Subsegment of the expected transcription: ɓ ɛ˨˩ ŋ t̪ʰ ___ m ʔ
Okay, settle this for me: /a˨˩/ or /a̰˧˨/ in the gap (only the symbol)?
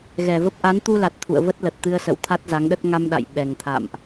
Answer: a̰˧˨